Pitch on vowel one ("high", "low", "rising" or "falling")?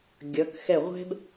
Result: rising